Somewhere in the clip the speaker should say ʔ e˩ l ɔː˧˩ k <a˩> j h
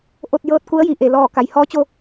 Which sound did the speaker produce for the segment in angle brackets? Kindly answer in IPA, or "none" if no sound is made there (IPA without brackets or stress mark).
a˩